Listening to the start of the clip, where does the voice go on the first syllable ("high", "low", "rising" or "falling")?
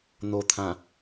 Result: low